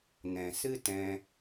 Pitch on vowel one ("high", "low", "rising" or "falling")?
low